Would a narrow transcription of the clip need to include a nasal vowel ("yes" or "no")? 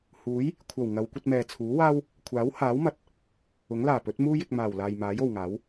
no